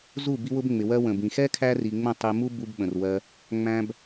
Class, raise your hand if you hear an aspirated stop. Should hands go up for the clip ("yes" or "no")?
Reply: yes